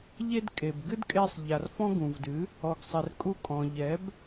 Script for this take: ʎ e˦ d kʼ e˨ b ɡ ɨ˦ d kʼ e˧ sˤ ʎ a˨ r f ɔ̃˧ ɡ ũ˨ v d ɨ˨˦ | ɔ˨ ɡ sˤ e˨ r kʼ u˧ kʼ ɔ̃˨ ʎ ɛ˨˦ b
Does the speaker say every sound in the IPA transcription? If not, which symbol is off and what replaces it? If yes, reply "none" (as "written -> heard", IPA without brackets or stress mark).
none